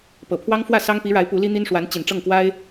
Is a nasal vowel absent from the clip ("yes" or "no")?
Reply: yes